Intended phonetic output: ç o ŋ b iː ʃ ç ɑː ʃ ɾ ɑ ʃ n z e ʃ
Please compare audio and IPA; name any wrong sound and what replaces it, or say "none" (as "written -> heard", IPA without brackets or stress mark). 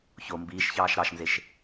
ŋ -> m